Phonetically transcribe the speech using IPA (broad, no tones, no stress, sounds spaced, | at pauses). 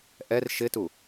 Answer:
ʔ ɛ r ʃ ɪ t u